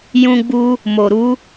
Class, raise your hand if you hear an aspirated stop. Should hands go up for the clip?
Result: no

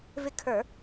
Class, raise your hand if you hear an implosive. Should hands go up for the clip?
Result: no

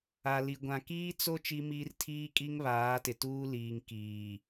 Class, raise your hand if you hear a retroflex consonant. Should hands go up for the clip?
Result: no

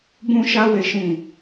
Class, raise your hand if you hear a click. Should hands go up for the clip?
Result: no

